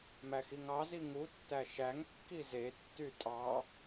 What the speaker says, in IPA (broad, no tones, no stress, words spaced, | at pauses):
mæxiŋɑzi ŋutːæ ʃæŋkːi zetːy tʼɑ